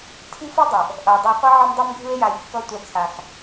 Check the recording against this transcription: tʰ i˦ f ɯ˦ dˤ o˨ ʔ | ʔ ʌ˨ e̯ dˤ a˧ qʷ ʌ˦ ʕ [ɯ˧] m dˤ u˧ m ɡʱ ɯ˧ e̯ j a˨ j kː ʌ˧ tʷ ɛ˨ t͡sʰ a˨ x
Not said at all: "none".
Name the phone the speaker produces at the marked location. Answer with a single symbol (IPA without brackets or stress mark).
ɯ˧